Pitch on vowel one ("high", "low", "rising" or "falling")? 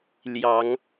rising